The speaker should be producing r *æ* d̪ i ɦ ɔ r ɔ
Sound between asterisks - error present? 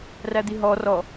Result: no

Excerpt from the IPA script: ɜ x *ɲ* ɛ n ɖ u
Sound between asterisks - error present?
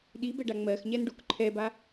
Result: no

